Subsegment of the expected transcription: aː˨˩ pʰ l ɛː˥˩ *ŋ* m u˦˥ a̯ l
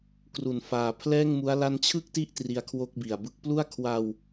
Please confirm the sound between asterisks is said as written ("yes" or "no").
yes